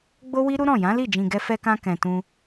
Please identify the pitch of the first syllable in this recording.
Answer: high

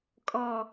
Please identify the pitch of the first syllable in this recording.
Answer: low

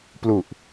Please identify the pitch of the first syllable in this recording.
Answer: low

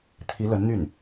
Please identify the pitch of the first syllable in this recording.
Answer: rising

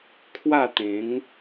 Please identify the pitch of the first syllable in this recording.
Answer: falling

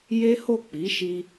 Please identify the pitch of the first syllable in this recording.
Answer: high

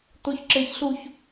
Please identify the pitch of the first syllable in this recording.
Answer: rising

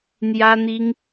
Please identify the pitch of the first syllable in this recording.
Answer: high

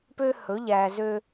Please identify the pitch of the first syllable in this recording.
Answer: high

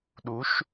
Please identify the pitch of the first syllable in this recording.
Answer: rising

